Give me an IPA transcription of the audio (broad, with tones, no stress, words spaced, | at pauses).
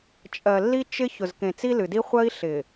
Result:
t͡ʃʼɜ˨lːi˦ t͡ʃɪ˦ çʊ˨zkẽ˨t͡si˦ lɨ˨di˦ χʷɜ˦i̯ɬɪ˨